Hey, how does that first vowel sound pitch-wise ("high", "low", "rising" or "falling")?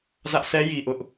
high